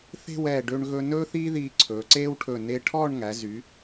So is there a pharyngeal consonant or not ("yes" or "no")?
no